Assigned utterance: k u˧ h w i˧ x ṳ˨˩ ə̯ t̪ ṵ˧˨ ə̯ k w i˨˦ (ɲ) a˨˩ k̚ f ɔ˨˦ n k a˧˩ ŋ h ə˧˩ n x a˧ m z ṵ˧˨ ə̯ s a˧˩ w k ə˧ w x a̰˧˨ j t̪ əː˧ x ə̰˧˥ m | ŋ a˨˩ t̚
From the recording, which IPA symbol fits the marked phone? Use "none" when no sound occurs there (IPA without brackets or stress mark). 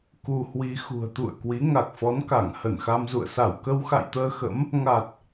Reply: ŋ